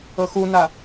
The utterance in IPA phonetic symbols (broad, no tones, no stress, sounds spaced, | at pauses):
ɤ x u n a